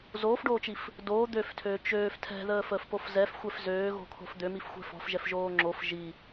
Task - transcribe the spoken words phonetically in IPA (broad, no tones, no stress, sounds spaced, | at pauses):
z oː f ɖ oː t͡ʃ i f | d oː d̪ ø f tʰ øː t͡ʃ øː f tʰ ɛ̤ ð əː f əː f p o f z ɛ f xʷ ɛ f z øː ɣ o̤ kʰ o̤ f d̪ ø m i f xʷ ɛ̤ f ɔ̤ f ʒ ɛ f ʒ oː ŋ͡ǁ o f ʒ i